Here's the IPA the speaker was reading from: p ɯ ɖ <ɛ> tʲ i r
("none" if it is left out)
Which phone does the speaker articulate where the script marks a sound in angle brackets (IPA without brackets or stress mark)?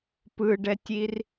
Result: ɛ